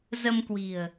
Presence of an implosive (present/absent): absent